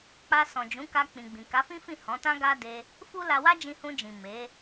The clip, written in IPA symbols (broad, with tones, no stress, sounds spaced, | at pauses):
k͡p a˧ s ɔ̃˨ d͡ʒ ũ˨˦ k a˧ k͡p ĩ˨ ɡ͡b ĩ˨ k a˨˦ f ĩ˦ f ĩ˦˨ h ɔ̃˨˦ t ã˦ ɡ a˦ d e˧ | f u˦ l a˧ w a˦ d͡ʒ ĩ˧ h ũ˧ d͡ʒ ĩ˨ m e˨˦